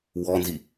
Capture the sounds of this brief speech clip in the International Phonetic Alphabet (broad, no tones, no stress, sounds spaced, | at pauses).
w ɔ n z i